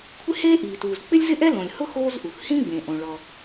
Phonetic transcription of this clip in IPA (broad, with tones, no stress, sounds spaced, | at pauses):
kʷʰ ɪ˥ h eː˥ ʔ iː˩ t uː˩ z k͡p ɪ˥ lʲ z ɪ˥ ʔ ɛ˥ l õ˩ lʲ h ʊ˥ x oː˥ z ʔ u˩ x h ĩ˥ ɡ͡b ẽ˩ ʔ õ˩ ɭ ɔ˩